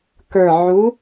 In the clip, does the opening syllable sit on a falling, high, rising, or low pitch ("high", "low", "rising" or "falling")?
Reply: low